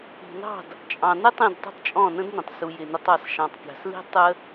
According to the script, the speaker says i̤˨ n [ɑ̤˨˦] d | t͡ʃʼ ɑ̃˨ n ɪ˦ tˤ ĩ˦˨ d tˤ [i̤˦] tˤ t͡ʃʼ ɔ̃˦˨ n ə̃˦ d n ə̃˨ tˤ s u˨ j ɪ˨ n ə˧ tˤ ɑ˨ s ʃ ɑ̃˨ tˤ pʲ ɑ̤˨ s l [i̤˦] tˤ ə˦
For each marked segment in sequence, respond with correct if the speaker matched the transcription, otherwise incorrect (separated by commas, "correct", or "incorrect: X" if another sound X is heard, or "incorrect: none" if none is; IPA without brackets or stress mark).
incorrect: ɑ̤˦˨, correct, correct